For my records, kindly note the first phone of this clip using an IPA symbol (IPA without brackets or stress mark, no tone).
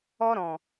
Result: ɔ